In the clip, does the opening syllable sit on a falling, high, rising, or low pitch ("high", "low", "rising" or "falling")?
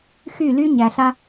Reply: falling